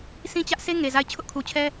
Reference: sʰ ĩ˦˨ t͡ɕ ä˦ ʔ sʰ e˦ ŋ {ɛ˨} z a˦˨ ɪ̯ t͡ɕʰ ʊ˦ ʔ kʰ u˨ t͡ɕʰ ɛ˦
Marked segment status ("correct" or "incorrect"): incorrect